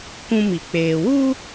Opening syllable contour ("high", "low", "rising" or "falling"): high